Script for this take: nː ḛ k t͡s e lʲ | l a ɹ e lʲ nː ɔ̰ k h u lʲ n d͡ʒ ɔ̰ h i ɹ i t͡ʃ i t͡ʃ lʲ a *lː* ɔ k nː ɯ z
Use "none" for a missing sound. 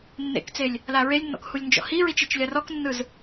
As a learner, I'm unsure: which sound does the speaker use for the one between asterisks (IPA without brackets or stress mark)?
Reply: r